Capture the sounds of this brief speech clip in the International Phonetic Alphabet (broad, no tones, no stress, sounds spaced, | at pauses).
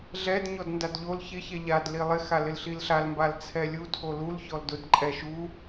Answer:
ɮ ɛ d ɲ ɔ d n d a d ʎ o l ç ɪ ç ɛ ʎ a d l i lˠ ɪ x a l ɪ l ɬ i l ɬ a l m b a l t͡sʰ ɛ lʲ u tʰ o l u l ç ɔ l d ʊ d ǃʼ ɛ ʃ u